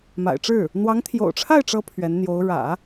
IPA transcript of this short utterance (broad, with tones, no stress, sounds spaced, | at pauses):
m a̰˨˩ ɪ̯ ʈ͡ʂ ɻ̩˥˩ | n̪ w ɑ˧˥ ŋ t̪ʰ j o̰˨˩ ʊ̯ ʈ͡ʂʰ a˥˩ ɪ̯ ʈ͡ʂ ɤ˧˥ pʰ ɥ ɛ˧˥ n n̪ j o˧˥ ʊ̯ ɻ ä̰˨˩˦